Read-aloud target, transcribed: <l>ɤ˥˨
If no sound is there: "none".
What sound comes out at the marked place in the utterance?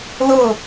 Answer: l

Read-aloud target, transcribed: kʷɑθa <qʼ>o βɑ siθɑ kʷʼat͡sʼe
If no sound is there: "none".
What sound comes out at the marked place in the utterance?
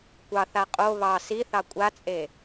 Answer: qʼ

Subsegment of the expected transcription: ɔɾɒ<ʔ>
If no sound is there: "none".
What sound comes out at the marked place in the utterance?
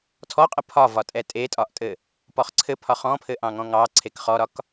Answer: k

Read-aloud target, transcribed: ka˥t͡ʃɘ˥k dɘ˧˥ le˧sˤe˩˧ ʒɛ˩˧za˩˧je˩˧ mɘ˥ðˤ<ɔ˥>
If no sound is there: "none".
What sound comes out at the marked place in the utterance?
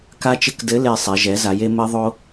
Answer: o˥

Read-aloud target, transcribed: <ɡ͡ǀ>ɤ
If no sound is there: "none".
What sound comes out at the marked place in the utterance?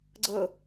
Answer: ɡ͡ǀ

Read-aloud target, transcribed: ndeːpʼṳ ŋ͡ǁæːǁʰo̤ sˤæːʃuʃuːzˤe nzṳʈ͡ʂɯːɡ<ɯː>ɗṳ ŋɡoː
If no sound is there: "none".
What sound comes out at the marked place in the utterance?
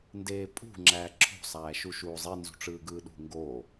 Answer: ɯː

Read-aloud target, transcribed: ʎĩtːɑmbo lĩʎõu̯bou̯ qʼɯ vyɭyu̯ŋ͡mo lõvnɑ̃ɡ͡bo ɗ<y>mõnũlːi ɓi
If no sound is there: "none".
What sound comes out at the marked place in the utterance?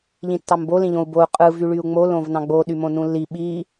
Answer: y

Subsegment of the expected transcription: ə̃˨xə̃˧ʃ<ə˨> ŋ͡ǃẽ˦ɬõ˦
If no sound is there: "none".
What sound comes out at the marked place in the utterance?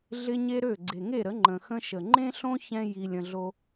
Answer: ə˨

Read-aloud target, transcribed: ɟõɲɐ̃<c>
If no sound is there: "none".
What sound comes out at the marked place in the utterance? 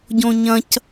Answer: c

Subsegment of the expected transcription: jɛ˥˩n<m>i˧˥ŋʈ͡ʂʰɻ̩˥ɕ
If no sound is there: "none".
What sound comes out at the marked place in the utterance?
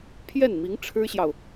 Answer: m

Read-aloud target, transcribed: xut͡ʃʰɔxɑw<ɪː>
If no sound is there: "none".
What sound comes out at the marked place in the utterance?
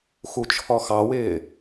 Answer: ɪː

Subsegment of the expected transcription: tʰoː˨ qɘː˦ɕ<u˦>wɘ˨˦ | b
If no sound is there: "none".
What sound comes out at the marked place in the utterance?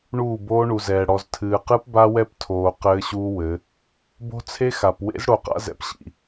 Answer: uː˦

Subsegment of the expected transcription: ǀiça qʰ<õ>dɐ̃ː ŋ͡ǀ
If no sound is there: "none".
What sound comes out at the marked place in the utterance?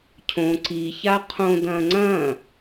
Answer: õ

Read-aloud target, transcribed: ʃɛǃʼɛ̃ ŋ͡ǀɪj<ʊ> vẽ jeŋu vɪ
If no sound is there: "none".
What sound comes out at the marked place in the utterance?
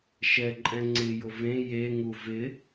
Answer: ʊ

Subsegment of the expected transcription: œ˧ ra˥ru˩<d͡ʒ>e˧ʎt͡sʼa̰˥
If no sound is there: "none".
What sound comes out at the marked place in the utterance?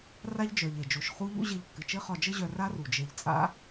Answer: d͡ʒ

